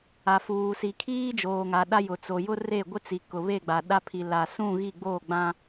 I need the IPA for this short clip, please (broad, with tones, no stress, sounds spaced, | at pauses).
a˨ f uː˨ s i˨ kʰ iː˦ d͡ʒ oː˨ ŋ a˨ ɗ a˦ j ʊ˨ t͡s o˨ j ʊ˦ r e˦˨ ɡʷ ɪ˦ t͡s i˨ k ʊ˨ β e˦˨ ɡ͡b a˨ ɗ a˦ pʰ i˨ l a˨ s ũ˦˨ ɣ i˦˨ ɡ͡b oː˦˨ ɡ͡b ã˦